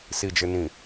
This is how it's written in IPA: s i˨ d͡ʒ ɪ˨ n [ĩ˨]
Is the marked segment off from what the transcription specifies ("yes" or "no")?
no